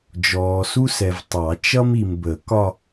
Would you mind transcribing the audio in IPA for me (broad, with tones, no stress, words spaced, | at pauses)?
d͡ʒɔː˨su˥sɛ˨v tˤɑ˨˩˦t͡ʃʌ˥m i˨mbə˨˩˦kɒ˥˧